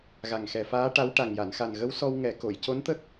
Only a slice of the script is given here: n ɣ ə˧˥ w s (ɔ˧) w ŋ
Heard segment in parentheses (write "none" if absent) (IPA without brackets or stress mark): ɔ˧